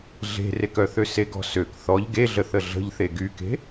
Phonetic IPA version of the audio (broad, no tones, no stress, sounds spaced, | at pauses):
ɮ e̤ r e k œ θ ø s e ɡ ɔ̤ s ø k θ ɔ ʎ ɡ e ɮ ə θ ə ɮ ə̤ ʎ θ e ɡ y k e̤